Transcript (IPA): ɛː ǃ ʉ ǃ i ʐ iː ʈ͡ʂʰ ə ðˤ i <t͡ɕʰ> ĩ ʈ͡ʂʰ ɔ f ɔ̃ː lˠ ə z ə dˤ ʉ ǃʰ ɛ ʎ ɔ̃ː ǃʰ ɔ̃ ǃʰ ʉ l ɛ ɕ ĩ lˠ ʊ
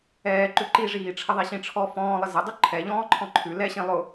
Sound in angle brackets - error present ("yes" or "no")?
yes